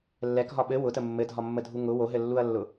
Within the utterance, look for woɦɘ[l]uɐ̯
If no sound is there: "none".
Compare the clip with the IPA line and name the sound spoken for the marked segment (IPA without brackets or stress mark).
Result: lː